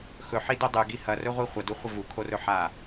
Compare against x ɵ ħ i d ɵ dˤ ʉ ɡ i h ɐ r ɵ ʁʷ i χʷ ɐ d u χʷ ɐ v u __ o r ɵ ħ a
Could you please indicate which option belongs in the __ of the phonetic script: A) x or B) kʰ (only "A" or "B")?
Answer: B